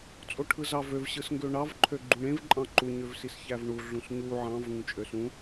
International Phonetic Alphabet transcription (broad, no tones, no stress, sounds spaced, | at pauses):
t͡sʼ o ʈʰ ɯ z ɑ v ø v ɕ ɯ s ŋ ɡ ø ɳ ɑ v ǃʰ ø ɡ͡ǃ ũ ɳ ẽ v ǃʼ ɑ̃ ǃ u ɲ ø v s i s ç æ v ɳ u ɮ ũ s ɲ u ʕ ɑ̃ v ŋ ũ t͡ʃʼ ø s ũ